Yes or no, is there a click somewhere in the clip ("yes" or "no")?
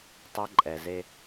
yes